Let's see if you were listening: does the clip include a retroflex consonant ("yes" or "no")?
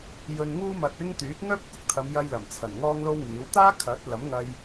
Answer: no